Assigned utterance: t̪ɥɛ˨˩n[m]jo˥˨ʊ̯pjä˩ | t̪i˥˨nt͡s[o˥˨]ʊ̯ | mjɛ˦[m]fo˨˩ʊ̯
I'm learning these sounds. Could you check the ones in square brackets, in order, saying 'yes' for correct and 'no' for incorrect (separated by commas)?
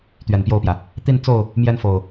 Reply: no, yes, no